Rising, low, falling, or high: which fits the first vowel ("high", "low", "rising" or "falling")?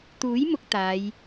rising